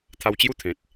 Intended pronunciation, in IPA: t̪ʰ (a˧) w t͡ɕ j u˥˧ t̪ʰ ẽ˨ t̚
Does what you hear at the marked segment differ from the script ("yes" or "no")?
no